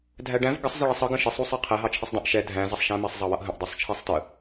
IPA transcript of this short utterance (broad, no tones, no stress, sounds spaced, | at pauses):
dʱ æ ɖ æ̃ v ɡ ə sˤ z ɪ ɭ ɛ sˤ ʌ ɡ ə̃ ʃ ɪ sˤ u sˤ æ qʰ ɛ ɦ ɑ t͡ʃʰ ɪ sˤ dˤ ə̃ ʔ ʃ ɛ dʱ æ̃ z ʌ sˤ ʃ æ̃ m ɛ sˤ zˤ ɑ w ʌ ʔ ɦ ə̃ ʔ dˤ u sˤ t͡ʃʰ ɛ sˤ t ə